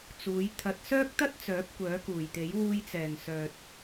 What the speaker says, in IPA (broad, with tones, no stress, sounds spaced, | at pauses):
t͡s uː˨˥ j t̪ʰ ɐ˨ t̚ s œː˥ k̚ t̪ ɐ˥ t̚ t͡s œː˨˥ p̚ kʷ œː˨˥ k uː˨˩ j t̪ e˨˥ j w uː˧ j t͡s ɛː˨˩ ŋ s œː˨ t̚